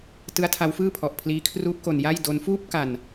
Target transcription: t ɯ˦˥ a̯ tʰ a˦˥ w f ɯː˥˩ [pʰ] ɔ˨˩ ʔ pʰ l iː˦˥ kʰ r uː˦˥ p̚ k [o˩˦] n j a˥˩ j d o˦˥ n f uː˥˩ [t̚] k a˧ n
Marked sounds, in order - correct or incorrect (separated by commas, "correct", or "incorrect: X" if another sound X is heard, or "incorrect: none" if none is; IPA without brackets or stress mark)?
correct, incorrect: o˧, incorrect: p̚